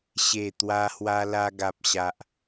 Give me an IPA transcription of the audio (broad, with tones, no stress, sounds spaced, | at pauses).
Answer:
ɕ e˥˧ t̪ w a˦ h w a˦ l a˦ ɡ a˦ p̚ ɕ a˦ ʔ